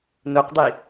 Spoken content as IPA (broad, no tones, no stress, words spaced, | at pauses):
noqdˤi